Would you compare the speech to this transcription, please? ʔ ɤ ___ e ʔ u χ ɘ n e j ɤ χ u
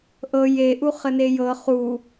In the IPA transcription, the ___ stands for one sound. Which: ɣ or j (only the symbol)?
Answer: j